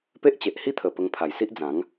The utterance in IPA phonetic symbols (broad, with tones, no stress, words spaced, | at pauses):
pe˦ʔt͡ɕe˨ʔhi˥˧t̪ʰə˨˩ pə˧ŋpʰa˨˩jsi˦ʔd͡zã˨˦ŋ